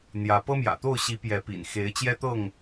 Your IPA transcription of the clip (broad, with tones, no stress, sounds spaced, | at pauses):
n̪ j ä˨˦ p ɤ˦ m j ä̰˨˩ t̪ o˥˨ ʊ̯ ɕ i˨˦ p j ɛ˨˦ p ḭ˨˩ n x e˨˦ ɪ̯ t͡ɕ j ɛ˦ t̪ ɤ˥˨ ŋ